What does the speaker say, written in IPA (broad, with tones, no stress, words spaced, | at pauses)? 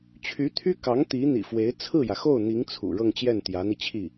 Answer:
t͡ɕʰy˧˥t̪ʰy˥ kɑ˧˥ŋ t̪i˧˥n̪ḭ˨˩fwe˧˥ɪ̯ t͡sʰɹ̩˥˩jä˩xo˥˩ʊ̯n̪i˧˥ŋ t͡sʰṵ˨˩ ɻɤ˥˧ŋt͡ɕjɛ˥˩n t̪jä˧˥n̪i˧t͡ɕʰi˥˩